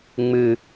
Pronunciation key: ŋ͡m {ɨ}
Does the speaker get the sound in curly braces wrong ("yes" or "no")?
no